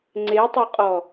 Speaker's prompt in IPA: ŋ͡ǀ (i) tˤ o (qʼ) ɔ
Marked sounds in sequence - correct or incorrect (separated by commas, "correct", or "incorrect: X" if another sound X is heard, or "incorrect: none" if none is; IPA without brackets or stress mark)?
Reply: incorrect: e, correct